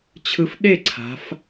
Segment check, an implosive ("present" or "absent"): present